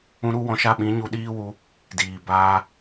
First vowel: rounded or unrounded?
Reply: rounded